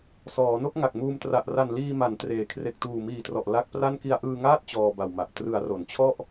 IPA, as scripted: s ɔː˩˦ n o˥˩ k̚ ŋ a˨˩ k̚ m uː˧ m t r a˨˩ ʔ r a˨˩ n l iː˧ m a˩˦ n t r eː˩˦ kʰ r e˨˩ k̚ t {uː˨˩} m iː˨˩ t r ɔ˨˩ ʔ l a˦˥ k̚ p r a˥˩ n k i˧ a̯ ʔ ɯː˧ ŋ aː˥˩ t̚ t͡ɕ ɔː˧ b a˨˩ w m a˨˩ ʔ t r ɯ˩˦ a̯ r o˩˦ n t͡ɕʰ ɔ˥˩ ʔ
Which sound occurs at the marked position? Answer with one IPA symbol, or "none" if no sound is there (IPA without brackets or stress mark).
uː˨˩